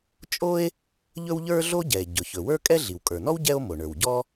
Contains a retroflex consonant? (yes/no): yes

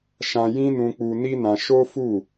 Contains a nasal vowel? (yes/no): yes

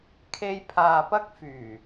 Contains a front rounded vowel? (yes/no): yes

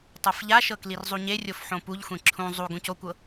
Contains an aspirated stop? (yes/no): yes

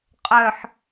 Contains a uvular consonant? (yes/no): yes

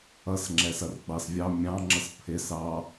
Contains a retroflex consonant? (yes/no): no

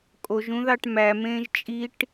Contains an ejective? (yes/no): yes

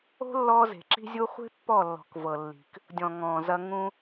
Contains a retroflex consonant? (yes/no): no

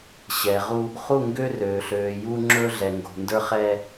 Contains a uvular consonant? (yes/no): yes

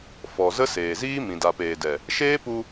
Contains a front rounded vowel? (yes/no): no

